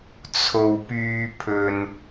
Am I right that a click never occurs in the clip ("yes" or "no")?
yes